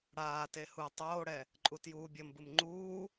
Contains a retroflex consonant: yes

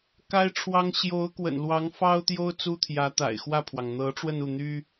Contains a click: no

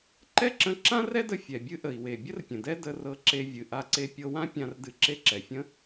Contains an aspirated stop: no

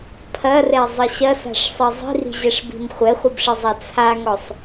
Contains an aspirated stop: yes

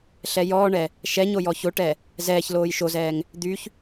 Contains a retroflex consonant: yes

